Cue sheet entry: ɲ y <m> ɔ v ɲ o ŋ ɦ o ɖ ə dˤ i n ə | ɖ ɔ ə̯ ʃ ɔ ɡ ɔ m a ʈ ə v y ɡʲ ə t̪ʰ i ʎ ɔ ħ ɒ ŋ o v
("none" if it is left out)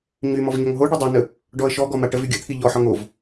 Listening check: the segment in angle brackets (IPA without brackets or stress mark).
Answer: m